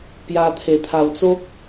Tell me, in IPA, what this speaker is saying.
p j a˧ t̪ʰ e˨˩ t̪ʰ a˨˩ w t͡s o˦ k̚

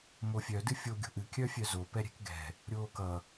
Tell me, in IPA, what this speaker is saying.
m o fʲ œ d ɨ fʲ o ɡʲ o̤ ʔ ɨ kʲ œ fʲ œ z o p ɛ ɾʲ ɛ̤ k ɡ ɛ̤ | ɾʲ oː k ʌ

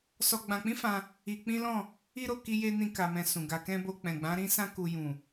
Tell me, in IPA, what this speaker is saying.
s ɔ˧ ɡ͡b ã˧ k͡p ĩ˦ f ã˧ | i˧ k͡p ĩ˦ l ɔ̃˦˨ | i˦ ɾ o˦˨ k i˧ j e˧ n ĩ˦ k a˧ m ɛ̃˧ s ũ˨ ɡ a˧ k ɛ̃˦ b o˧ k͡p ɛ̃˨ ɡ͡b ã˨˦ ɾ ĩ˦ s ã˦ k u˧ j ũ˨

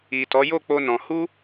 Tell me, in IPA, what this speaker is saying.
i˨ t ɔ˨˦ j o˦˨ k͡p o˧ n ɔ̃˨ h u˧

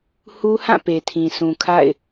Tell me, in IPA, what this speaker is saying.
h u˦ h ã˦˨ p e˨ tʰ ĩ˨ s ũ˨ kʰ a̰˦˨ ɪ̯

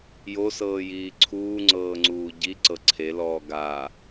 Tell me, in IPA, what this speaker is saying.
j o s ɤː j iː ǀʰ uː ŋ͡ǀ ɤː ŋ͡ǀ uː ɟ i ǀ ɤ ǀʰ e l ɔː ɡ a

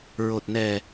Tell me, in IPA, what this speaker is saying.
ɹ o˨˩ t̚ n ɛ˨˩

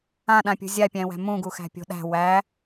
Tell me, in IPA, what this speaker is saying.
ã ɗ ã pʲ ṳ zʲ a pʲ æ̃ w æ̤ m ũ ɡ u x æ̤ pʲ o̤ ɗ æ̤ w æ

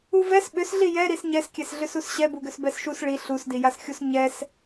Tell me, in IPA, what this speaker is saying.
u v ɛ s ɓ ʏ s ɮ i j ɛ ɾ i s ɲ ɛ s kʲ ɛ s ɮ ʏ s u s ɕ ɛ b u ɡ ʏ s b ɛ s ʃ u s ɭ i ɬ u s d i j a s xʲ u s ɲ ɛ s

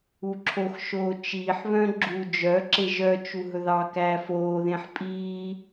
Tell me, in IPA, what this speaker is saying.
u ǁʰ o x ʃ oː t͡ʃ iː ħ β œ̃ ɡ͡ǁ u d͡ʒ œ ǁ e ʒ œ t͡ʃ u ɦ ɵ ð ɑ k æː f oː ð ẽ ħ pʼ iː

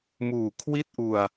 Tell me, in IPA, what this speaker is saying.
m uː˨˩ kʰ w i˥˩ t̚ ʔ u˧ a̯

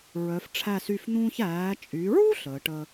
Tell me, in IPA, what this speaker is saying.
ɹ œ˩˧ f ʈ͡ʂʰ æ˧˩ s y˧˩ f n̪ ũː˧ ç æː˩˧ t͡ʃʼ y˩˧ ɹ u˥ ɬ əː˩˧ ʈ ə˧

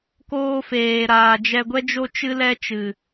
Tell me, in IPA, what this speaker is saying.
k oː˧ f eː˨ ɾ aː˨ d͡ʒ ɛ˧ ɡʷ ɛ˦ d͡ʒ o˦ t͡ʃ ɨ˦ l ɛ˦ t͡ʃ ɨ˨

